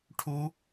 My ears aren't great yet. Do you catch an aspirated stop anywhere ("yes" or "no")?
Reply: yes